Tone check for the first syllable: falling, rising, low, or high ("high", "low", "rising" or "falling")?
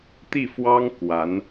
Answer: falling